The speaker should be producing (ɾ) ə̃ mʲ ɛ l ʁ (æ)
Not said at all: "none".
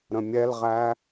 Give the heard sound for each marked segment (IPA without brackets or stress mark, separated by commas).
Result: ɾ, æ